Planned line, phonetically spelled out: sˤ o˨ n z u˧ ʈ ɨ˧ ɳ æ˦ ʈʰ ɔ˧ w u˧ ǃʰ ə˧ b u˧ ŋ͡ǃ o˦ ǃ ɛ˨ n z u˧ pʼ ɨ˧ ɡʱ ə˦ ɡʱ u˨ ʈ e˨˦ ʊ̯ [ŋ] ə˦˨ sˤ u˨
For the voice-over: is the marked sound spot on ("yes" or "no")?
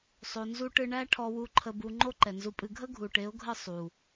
no